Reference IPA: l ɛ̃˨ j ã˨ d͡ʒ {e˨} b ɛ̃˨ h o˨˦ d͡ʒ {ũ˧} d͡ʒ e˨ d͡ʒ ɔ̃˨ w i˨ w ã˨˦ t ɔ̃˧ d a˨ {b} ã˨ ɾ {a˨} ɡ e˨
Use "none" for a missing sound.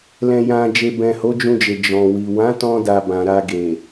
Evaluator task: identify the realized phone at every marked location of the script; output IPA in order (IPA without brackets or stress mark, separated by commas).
e˨, ũ˧, b, a˧